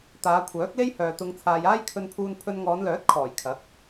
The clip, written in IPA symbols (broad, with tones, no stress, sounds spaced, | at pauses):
t̪ aː˨˧ kʷʰ œː˨˥ k̚ l e˥ j h œː˨ t̪ ʊ˧ ŋ t͡sʰ aː˨ j aː˥ j kʰ ɵ˧ n pʰ uː˧ n pʰ ɵ˧ n ŋ ɔː˨˧ n l œː˨˥ t̚ kʰ ɔː˨˩ j kʰ ɐ˨˥ k̚